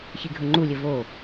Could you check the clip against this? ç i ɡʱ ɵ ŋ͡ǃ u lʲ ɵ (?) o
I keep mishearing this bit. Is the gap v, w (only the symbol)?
v